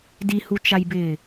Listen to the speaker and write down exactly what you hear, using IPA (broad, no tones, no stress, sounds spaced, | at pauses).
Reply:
d i h u t͡ʃ a j b ɪː